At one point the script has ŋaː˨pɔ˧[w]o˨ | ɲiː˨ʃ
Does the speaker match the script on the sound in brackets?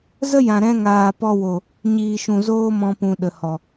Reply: yes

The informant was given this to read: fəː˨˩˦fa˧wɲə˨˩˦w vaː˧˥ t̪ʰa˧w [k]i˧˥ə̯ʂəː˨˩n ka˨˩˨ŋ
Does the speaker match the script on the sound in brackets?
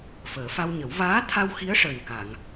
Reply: no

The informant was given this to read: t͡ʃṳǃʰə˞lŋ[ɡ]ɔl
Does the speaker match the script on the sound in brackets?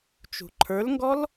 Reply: yes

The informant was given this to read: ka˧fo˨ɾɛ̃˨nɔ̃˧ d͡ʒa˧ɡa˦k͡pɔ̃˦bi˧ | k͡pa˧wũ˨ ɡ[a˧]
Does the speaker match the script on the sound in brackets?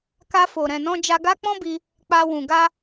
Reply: yes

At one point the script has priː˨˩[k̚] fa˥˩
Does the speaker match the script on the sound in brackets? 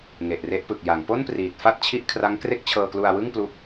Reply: no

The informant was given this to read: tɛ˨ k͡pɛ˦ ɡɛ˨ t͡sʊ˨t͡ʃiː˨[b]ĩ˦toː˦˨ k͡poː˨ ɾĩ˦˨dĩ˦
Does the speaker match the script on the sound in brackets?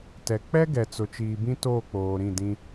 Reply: yes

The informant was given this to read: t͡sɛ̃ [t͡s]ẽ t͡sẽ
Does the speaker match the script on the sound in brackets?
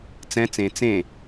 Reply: yes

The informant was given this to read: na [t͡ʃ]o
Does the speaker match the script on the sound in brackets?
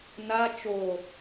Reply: yes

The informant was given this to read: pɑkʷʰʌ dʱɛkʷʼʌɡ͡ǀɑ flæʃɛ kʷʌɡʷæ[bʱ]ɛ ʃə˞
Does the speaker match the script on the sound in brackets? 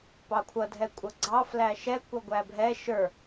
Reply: yes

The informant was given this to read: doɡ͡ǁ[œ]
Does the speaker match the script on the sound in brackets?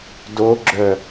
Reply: yes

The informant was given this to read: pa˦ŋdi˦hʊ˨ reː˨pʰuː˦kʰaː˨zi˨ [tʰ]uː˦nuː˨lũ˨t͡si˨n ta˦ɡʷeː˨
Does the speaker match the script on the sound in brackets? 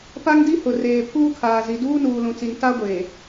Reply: no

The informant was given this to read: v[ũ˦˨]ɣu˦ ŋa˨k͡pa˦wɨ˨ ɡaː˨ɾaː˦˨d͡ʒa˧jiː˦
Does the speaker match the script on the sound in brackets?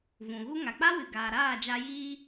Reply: no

